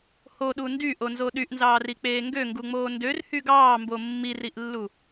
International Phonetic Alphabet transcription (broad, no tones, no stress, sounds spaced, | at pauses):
h o ɗ u n d y ʔ o n z o ɗ y ʔ n z ɑː r i k͡p eː ŋ ɡ ø ŋ ɡ u ŋ͡m oː n d ø r h y ɡ ɑː m b o mː i r i ʔ lː u